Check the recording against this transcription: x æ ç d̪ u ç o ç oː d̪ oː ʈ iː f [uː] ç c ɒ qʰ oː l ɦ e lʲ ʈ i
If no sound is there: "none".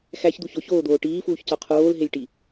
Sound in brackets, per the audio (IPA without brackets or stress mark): uː